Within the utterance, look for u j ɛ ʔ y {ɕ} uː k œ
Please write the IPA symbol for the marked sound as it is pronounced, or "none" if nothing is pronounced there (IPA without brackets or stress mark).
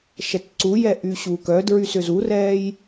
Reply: ɕ